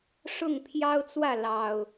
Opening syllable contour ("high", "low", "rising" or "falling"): falling